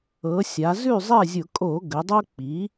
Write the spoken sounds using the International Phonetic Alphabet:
ɤ˩˧ sʲ a˩˧ z ʉ˥˨ zˤ ɛ˥˨ zʲ ʊ˧˩˧ kʼ o˧˩˧ ɡ ə˩˧ dˤ o˦ k͡p i˩˥

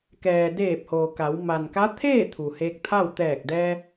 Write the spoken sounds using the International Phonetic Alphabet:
k ɛː˩ d eː˧˩ p̚ h oː˩ k a˩˧ w m a˩ n k a˧˥ t̪ʰ eː˥˨ t̪ʰ u˩ h eː˧ k̚ t̪ʰ a˥˨ w t̪ ɛː˧˩ k̚ d ɛː˧

